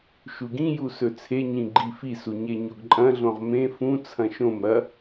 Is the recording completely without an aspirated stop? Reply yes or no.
no